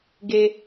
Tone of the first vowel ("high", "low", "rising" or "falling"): low